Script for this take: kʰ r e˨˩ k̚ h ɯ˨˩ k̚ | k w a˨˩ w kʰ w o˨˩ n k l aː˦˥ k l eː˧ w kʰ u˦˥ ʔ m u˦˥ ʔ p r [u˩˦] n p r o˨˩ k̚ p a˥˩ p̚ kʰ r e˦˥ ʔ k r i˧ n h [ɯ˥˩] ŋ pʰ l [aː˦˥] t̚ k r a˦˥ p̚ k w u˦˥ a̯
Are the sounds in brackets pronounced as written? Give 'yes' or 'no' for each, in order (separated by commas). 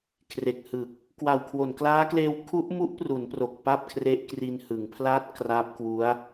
yes, no, yes